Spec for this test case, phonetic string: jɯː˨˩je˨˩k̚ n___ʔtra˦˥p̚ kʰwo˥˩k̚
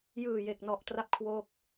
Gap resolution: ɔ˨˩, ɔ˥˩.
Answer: ɔ˨˩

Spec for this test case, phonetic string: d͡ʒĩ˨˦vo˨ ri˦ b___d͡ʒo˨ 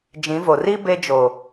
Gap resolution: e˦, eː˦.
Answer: e˦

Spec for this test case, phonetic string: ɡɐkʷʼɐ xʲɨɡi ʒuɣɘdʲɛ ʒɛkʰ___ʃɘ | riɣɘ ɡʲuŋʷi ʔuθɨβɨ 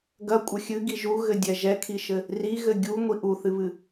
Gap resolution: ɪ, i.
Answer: i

